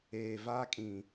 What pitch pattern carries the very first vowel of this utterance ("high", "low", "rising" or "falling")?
low